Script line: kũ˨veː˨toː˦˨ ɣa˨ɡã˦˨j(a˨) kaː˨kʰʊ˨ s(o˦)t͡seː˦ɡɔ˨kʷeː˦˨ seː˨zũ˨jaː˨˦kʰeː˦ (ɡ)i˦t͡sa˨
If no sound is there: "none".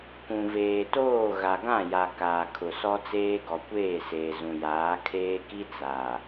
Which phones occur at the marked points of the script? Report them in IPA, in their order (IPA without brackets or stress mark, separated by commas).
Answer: a˨, ɔ˦, k